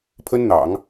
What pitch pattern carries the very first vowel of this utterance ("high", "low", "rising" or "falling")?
high